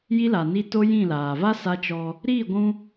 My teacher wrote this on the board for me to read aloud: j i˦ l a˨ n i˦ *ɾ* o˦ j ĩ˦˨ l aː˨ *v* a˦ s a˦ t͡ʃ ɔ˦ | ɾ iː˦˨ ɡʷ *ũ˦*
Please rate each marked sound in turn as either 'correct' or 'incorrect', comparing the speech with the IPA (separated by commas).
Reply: incorrect, correct, correct